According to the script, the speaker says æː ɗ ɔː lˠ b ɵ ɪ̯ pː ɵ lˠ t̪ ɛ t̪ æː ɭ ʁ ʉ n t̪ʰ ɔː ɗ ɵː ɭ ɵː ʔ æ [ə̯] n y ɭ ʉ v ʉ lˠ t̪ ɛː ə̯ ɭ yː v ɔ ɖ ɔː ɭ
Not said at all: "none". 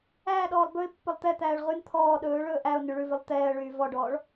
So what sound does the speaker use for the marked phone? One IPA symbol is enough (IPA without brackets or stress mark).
ʊ̯